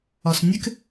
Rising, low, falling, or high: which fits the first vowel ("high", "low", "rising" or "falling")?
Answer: low